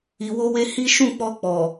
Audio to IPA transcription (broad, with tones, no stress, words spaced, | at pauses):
i˧wo˦we˦ hi˦ ʃũ˦˨k͡pɔ˧k͡pɔ˨